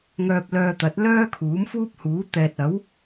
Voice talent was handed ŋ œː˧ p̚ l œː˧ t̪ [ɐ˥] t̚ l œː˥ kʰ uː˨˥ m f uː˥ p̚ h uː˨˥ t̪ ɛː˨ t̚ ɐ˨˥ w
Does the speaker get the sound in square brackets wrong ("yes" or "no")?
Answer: yes